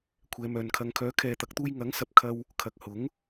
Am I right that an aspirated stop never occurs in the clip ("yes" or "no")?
no